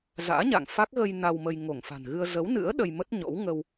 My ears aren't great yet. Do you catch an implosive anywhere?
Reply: yes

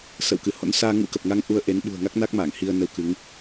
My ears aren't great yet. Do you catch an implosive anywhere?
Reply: yes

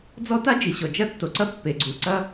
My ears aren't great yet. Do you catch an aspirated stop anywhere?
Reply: no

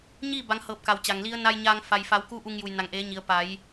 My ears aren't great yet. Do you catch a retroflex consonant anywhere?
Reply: no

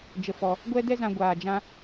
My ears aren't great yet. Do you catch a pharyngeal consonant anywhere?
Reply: no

